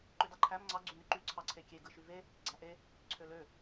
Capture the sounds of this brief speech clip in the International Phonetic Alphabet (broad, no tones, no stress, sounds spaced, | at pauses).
ǃ ø d ɑ ǃʰ æ m ŋ͡ǀ ɑ ɡ͡ǀ y n y ǃ y ǀʰ ɑ ǀʰ e kʲ e ɡ ɯ ʃ y v e | ɡ͡ǀ æ ʔ e | ǀʰ ø l ø